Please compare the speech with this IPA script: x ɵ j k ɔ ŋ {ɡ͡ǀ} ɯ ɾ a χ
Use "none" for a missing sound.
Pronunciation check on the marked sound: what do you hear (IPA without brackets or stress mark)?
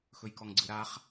ɡ͡ǀ